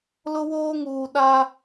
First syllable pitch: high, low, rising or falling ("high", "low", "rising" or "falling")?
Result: high